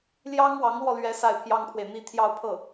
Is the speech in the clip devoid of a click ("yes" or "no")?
yes